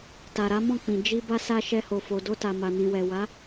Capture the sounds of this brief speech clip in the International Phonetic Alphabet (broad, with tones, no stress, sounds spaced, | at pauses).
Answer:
t a˨ ɾ a˨˦ m ɔ̃˦˨ k͡p ĩ˨ d͡ʒ i˧ b a˦ s a˦ ʃ ɛ˧ h o˨ f o˨ d o˧ t a˨ m a˨ n ĩ˨ w ɛ˨ w a˨˦